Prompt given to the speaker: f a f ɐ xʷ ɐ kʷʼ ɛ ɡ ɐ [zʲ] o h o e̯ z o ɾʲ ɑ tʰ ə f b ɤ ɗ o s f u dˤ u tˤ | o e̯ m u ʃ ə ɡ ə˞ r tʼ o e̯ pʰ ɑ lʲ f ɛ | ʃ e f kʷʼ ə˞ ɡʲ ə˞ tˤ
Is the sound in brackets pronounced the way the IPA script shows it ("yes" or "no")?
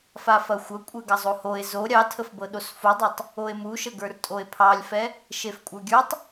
no